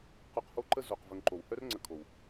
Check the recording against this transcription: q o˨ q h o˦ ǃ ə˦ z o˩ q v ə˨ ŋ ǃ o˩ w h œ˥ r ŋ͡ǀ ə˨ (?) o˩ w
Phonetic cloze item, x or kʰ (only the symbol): kʰ